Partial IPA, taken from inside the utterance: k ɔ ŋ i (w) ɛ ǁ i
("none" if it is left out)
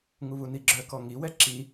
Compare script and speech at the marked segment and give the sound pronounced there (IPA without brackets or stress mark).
w